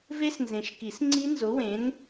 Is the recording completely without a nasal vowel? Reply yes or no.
no